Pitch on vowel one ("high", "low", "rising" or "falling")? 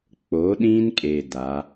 rising